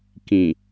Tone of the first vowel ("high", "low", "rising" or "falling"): low